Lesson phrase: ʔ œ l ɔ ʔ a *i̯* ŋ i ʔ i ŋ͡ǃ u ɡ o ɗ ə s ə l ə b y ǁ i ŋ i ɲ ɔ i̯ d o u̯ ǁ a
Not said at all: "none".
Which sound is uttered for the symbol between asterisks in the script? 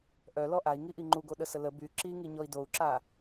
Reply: i̯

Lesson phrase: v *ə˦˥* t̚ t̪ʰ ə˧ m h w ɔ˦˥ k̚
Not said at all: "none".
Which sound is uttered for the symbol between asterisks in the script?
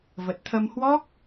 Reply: ə˨˩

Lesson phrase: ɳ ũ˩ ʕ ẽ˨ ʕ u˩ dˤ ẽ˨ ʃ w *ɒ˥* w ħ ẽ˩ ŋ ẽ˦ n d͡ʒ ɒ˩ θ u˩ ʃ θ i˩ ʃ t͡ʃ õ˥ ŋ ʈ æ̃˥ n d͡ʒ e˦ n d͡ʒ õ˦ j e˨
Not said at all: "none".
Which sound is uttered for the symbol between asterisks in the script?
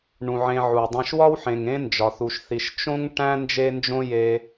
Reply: ɒ˥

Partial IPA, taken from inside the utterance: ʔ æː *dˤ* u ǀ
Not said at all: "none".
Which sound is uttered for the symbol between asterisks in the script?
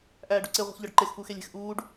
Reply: ɖ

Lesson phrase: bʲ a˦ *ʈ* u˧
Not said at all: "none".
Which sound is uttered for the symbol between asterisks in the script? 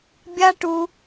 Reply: ʈ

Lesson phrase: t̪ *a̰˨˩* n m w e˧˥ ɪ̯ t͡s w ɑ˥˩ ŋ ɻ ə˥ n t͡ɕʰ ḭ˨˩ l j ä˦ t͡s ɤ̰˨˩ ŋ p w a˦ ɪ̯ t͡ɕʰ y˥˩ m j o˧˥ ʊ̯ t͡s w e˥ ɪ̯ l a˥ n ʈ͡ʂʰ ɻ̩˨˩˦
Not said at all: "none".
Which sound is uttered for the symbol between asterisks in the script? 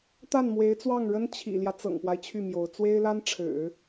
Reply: a˥˩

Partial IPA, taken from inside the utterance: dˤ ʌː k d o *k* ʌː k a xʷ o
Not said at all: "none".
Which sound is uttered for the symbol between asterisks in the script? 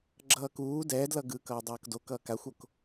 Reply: k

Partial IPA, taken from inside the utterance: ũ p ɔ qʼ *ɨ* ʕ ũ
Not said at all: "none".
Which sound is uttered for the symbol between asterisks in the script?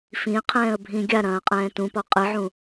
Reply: ɨ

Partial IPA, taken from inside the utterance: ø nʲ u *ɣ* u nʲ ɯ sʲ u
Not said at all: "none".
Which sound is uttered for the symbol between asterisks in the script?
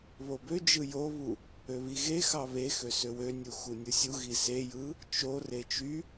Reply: x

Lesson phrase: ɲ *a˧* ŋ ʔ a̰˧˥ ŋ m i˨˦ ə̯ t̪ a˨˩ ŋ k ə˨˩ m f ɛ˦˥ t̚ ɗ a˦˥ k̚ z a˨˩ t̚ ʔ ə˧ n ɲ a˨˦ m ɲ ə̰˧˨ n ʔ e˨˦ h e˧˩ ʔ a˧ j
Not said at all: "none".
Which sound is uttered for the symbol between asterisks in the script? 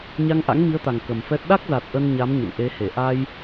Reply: a˧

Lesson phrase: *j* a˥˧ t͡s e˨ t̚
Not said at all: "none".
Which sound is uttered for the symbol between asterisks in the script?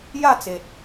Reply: j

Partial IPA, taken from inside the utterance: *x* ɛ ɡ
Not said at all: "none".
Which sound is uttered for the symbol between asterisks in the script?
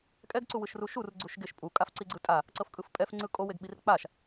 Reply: kʼ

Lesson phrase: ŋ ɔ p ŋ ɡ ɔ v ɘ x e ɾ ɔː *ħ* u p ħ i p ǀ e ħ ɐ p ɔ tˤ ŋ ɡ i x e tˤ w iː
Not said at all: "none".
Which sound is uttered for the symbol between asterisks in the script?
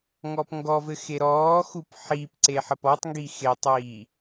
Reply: x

